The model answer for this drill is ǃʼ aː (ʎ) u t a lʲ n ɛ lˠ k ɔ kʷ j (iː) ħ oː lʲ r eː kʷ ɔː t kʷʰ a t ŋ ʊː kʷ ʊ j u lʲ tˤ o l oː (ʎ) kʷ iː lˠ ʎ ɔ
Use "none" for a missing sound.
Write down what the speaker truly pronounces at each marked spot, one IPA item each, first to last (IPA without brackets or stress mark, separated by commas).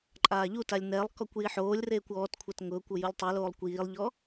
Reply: ʎ, i, lˠ